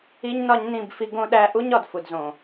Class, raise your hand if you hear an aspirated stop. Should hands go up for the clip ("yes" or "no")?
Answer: no